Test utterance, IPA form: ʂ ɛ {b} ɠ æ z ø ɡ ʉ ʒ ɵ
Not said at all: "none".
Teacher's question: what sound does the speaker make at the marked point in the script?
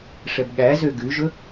b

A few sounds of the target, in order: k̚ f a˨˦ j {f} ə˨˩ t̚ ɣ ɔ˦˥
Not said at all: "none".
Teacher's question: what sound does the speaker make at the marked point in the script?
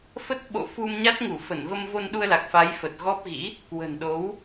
f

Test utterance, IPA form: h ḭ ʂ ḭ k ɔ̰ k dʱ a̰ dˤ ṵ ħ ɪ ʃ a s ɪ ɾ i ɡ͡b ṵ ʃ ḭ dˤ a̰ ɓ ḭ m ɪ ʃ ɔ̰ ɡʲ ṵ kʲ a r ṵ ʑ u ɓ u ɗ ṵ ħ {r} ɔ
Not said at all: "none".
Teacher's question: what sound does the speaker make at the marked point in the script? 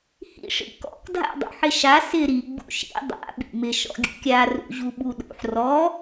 r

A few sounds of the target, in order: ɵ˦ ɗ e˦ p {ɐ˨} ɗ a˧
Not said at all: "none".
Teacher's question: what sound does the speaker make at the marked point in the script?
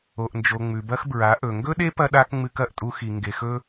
ɐ˧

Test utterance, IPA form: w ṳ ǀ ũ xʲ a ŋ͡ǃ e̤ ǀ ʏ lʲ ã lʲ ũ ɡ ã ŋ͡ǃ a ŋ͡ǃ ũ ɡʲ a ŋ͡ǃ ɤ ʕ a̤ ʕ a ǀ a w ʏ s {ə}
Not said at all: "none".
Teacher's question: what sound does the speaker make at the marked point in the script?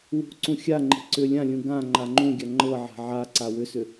ʏ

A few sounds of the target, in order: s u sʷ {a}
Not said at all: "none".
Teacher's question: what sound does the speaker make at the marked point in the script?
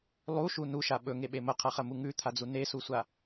a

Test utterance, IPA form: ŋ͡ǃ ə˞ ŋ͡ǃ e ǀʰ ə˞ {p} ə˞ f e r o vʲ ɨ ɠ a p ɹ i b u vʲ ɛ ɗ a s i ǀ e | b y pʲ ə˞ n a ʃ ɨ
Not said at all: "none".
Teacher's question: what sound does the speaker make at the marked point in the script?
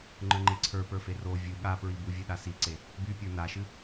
p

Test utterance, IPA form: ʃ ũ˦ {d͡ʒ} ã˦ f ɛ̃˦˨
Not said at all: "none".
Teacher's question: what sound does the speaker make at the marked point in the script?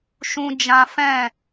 d͡ʒ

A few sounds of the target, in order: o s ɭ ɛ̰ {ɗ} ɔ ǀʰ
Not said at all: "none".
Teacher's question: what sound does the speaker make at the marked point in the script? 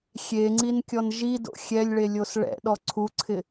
ɗ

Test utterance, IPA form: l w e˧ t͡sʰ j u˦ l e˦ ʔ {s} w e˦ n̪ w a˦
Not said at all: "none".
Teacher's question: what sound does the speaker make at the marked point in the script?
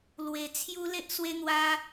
s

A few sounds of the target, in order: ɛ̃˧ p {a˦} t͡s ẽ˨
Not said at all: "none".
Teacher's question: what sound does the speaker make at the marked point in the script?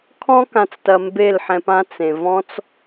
ã˦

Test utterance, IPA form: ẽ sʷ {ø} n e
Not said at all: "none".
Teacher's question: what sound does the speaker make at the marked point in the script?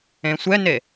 ɛ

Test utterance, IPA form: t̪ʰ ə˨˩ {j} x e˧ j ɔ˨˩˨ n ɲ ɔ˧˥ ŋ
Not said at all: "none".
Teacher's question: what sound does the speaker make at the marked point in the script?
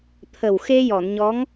w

